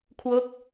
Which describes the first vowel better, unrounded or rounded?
rounded